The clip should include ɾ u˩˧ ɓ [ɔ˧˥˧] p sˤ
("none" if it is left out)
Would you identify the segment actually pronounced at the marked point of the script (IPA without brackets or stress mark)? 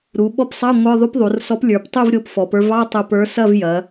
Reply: ɔ˧˥˧